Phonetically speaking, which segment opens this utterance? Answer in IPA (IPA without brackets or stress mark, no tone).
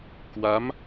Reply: k